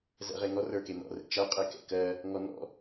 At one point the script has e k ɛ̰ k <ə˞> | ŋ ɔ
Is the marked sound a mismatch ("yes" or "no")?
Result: yes